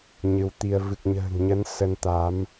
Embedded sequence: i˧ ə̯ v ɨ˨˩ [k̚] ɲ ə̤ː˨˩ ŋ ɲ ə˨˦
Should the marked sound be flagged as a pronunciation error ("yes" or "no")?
no